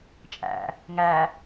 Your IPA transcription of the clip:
t͡ʃʼæ̰ | ŋæ

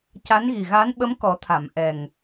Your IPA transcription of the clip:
ca˧˥nɣi˨˩ɣa˧˥nɓə˧˥m kɔ˨˩˦t̪ʰa˨˩˨m ʔɛ˨˩ŋ

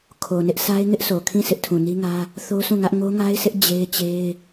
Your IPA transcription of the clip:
kʰo˨nɪ˦ʔ sʰa˦ɪ̯ ŋɪ˦ʔsʰo˨kʰĩ˦˨ sʰɪ˦ʔtʰũ˨ni˦ŋä˦ | θo˦sũ˦˨ŋä˦ʔ ŋo˦ŋa˦ɪ̯sʰɪ˦ʔ d͡ʑe˦ɪ̯t͡ɕe˦ɪ̯

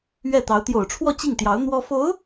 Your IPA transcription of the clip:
ɥɛ˥˩t̪ɑ˧˥ʊ̯ t̪jo˨˩ʊ̯ʈ͡ʂʰwɔ˥˧ t͡ɕi˥˩ŋt̪jɑ˧˥ʊ̯ n̪wɔ˥ fo˧˥ʊ̯

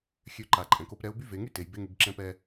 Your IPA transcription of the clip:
xʲø˧ǃa˩ ǃʼɛ̃˩ko˧p ɾɛ˧˥ʊ̯ by˥ ve˩˧ŋy˥te˩j be˧˥ŋy˩˧ɡǁɛ̃˧˥pɛ˧

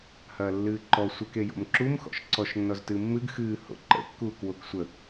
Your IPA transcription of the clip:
hɐːlːɨːǃɔ sʷəkejo̰m ǁum xɔ̰ʃǀɔʃnːɔz tɨmːɨɡ xɨːho̰ ǃə̰kːuːk woksʷə

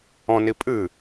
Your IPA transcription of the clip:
ɔ̃ni pʼɨ

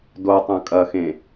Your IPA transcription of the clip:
dotˤœ̃ kʼɐxẽ

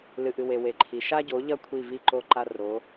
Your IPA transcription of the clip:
lɨ˨ʔɨ˨we˨ we˨ǃʰi˨ ʃa˦ɟo˨˦ʎɐ˦ kʷʰi˦˨vi˦ǃo˦ ǃa˦ ro˨˦

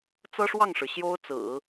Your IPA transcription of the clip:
t͡sɤ˥ʂwɑ˥˩ŋʂɻ̩˩ ɕjo˥ʊ̯t͡sɹ̩˨˩˦

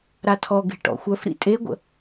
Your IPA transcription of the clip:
ɾatʰɔ ɡe̤ʈɔ̰xʷœf ɾḭtʼeɡʷə̰

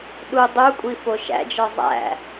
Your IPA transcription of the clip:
ɗu dˤukʷʼi foʃæ̰d͡ʒɒ zˤæ̰

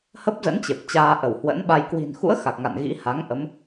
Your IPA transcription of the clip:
hə˦˥p̚zə̰˧˥n t͡ɕe˨˩p̚t͡ɕaː˧ ʔə˧˩whwə̰˧˥nɓa˧j kwi̤˨˩nxṵ˧˥ə̯ xa˨˩k̚ŋa̰˧˨n ɣḭ˧˥ha˨˦ŋ ʔə˨˦m

